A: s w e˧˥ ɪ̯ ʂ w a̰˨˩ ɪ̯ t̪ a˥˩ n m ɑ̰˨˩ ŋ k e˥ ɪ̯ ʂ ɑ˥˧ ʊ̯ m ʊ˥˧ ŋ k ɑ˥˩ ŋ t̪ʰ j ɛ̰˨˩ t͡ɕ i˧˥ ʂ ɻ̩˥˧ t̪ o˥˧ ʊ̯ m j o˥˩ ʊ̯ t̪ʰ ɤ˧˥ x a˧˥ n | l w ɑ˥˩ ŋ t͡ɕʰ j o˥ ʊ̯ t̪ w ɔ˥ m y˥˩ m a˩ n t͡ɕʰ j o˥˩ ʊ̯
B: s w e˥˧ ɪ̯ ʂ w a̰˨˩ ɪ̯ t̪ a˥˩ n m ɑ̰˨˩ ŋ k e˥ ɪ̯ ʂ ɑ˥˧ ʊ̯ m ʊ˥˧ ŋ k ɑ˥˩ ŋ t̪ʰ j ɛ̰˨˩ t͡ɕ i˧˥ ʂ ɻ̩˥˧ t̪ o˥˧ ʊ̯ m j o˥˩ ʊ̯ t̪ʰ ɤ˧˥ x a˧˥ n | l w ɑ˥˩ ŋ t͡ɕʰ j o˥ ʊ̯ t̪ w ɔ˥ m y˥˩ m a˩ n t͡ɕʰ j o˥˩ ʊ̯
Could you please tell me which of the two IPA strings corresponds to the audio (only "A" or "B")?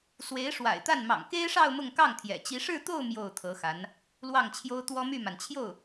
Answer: A